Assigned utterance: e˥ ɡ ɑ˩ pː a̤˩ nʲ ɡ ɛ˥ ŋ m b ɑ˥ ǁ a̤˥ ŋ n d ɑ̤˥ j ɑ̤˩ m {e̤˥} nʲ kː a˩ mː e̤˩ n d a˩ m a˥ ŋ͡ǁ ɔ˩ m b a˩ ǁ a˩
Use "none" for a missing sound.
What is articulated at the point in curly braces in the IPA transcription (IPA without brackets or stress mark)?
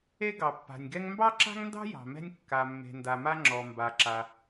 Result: ɛ̤˥